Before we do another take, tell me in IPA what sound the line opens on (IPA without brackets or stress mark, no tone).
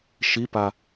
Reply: ʃ